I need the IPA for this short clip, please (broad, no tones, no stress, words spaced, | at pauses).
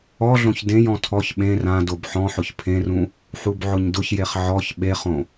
ɔɮõç dẽjɔ̃ tʰɔç ɓẽ rãdob ħɔ̃ħʊç pʰẽrũ | ħubʕʊɲdʊçjeχ ʕɔç ɓeχõ